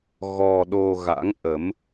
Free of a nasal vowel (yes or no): yes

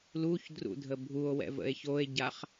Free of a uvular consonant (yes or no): no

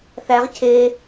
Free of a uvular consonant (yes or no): no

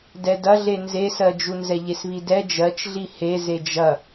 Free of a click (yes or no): yes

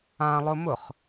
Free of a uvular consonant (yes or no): no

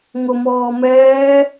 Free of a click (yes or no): yes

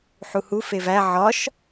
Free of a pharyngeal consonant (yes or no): no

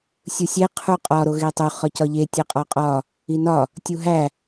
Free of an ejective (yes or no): no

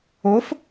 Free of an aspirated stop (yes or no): yes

